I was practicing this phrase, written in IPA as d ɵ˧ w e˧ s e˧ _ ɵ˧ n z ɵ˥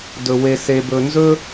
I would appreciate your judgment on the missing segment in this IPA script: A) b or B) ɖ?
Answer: A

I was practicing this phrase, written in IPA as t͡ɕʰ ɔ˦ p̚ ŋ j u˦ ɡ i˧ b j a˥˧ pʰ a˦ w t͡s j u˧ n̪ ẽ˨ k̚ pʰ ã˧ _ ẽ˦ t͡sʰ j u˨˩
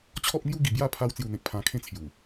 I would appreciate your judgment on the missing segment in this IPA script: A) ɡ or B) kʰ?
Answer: B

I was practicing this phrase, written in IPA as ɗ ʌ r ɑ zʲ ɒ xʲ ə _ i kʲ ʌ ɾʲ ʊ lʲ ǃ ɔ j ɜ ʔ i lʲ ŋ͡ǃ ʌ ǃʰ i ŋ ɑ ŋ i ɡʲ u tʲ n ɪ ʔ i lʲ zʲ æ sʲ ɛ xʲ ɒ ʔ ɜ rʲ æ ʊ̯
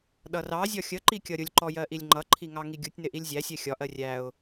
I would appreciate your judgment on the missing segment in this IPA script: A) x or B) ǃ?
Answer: B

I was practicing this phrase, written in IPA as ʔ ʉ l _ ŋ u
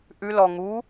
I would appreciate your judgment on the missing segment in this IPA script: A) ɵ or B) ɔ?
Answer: B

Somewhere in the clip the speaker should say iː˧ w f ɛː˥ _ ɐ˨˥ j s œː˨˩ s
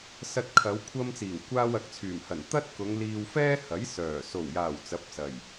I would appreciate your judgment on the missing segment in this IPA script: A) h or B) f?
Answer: A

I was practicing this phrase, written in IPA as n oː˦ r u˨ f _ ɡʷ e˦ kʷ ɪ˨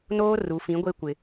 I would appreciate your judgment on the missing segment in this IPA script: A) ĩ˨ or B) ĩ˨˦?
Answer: B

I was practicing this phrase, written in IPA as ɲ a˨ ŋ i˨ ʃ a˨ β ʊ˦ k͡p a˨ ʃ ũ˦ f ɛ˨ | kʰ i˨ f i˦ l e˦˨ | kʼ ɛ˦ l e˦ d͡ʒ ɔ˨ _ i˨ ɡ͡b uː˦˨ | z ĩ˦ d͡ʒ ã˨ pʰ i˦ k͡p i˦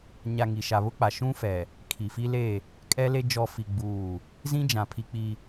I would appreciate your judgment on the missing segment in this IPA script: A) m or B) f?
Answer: B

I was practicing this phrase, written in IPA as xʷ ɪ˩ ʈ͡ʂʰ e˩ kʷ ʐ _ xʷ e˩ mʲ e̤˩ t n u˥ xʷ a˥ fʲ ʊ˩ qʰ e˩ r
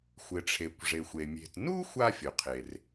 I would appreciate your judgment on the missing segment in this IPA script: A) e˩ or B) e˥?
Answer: A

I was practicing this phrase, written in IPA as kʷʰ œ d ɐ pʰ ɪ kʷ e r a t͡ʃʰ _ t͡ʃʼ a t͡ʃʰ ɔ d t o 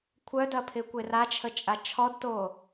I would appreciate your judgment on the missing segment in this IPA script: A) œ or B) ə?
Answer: B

